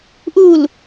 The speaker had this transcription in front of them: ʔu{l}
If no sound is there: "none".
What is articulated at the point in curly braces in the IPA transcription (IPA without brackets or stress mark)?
l